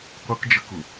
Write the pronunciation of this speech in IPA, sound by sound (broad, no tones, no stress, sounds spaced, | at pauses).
qʷ ə k d͡ʒ ə k ʊ